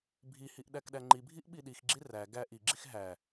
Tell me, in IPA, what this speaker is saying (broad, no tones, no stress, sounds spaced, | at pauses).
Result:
bʱ i h i ʔ ɗ æ k ɗ æ ŋ͡ǃ i bʱ i ʔ ɓ i ɗ i x ɡ͡ǁ i r æ ɡ æ ʔ i ɡ͡ǁ i x ɦ æ